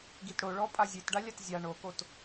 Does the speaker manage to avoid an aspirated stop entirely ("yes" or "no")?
yes